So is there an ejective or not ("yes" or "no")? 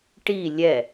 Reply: no